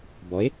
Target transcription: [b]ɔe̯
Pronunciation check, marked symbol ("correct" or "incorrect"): correct